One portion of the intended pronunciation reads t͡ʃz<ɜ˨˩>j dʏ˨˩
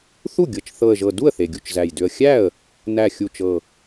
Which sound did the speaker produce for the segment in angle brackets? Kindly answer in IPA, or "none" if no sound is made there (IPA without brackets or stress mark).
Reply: æ˨˩